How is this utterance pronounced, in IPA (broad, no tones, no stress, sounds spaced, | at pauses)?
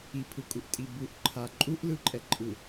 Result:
i pʰ ɯ kʼ u ʔ tʼ i b u ʔ ǃʰ a ǃʼ u ʔ l ɯ ǃʼ ɛ ǃʼ ɯ